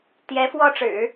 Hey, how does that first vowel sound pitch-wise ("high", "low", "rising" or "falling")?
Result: rising